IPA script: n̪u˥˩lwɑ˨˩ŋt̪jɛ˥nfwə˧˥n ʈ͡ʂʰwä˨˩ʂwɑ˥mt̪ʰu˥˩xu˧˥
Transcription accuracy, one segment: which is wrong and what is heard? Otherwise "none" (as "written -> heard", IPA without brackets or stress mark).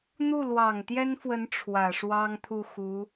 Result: m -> ŋ